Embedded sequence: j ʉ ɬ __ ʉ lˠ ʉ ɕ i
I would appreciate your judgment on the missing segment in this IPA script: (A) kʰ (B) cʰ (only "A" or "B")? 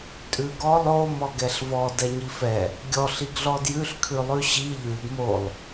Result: A